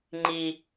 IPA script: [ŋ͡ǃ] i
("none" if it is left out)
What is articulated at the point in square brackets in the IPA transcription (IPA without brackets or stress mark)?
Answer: ŋ͡ǃ